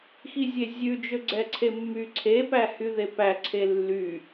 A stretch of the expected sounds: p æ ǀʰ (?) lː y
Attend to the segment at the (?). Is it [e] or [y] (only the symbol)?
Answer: e